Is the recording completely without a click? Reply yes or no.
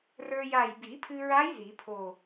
yes